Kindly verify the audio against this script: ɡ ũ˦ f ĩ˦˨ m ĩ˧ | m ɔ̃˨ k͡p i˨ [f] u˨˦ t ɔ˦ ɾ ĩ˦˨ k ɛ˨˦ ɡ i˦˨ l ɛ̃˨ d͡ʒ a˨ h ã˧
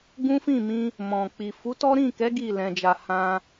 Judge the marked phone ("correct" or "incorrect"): correct